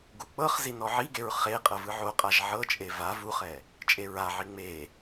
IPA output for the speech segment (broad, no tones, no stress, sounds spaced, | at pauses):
ɡ u k͡p ɤ χ z i n ɔ ʕ i ɡ e ɹ χ e qʼ ɤ v ɯ ʕ o qʼ a ʒ ʕ ɤ t͡ʃʼ e v a v u χ ɛ | t͡ʃʼ e ɹ a ʕ i ŋ͡m e